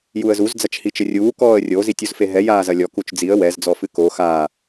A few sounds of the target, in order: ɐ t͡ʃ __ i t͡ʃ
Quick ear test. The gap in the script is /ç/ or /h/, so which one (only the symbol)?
h